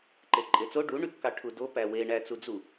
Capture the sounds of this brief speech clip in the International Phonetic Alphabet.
ǃ e ǃʼ e t͡s o ɖ u ɳ y p k ɑ ʈʰ u d o p æ w e ɳ æ t͡s u d͡z u

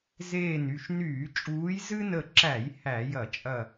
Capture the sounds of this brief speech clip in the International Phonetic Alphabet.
z eː˧˩ n y˧˩ ʃ n yː˧˩˧ t͡ʃʼ uː˨˦ j z ɨ˦ n ə˧˩ ǁ æ˧˩˧ j h æ˧˩˧ j ɐ˧˩˧ t͡ʃʼ ɐ˧˩

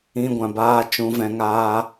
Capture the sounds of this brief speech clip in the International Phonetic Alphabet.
ĩ˦ ɡʷ ã˧ b aː˦ t͡ʃ ũ˦ v ɛ̃˦ ŋ aː˦

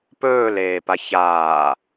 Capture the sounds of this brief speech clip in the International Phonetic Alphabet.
p ɵː l eː p a ç a

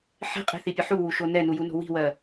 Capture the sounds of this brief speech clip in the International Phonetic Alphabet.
ħ e̤ qʼ e̤ θ i pʲ ə ħ u w u ʃ o n ɛ n u j u n o̤ w i̤ w ɜ

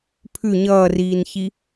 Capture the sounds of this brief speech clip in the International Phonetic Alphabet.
pʰ ʉ ɲ ʌː r iː n ç i

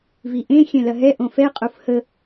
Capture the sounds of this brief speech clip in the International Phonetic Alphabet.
v i ʔ ẽ xʲ ɛ̃ l ɐ ɦ ɛ ʔ õ f ɛ qʼ o f h ə

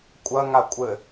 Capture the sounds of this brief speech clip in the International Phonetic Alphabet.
kʷʼ ɐ ŋ a kʷʼ ɘ

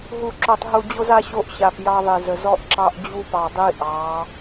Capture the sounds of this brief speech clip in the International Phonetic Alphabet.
ɦ u˨ ǁ o˨ tˤ ɦ u˨ d͡ʑ o˦ z a˦ ɕ o˦ ʔ ɕ a˨ p j ɑ˦ ðˤ i˨ z ə˨ z ɔ˦ ʔ ǁ ɑ˦ ʔ d͡ʑ u˦ p ɑ˨ dˤ i˦ ʔ ɑ˨˦

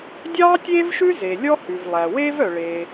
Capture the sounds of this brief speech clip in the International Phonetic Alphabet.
dʲ ɑː˥ tʲ eː˥ v ʃ ʉ˥ z e˩ lʲ ɔ˥ h ʉ˩ v lˠ æ˩ w eː˥ v œ˩ ɭ e˩

